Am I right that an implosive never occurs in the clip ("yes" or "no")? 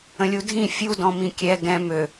yes